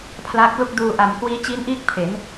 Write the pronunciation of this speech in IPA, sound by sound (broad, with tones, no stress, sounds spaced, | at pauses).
pʰ l a˦˥ k̚ l u˥˩ k̚ d uː˧ ʔ a˨˩ m k w iː˦˥ t͡ɕ i˦˥ n ʔ iː˥˩ k̚ pʰ e˩˦ n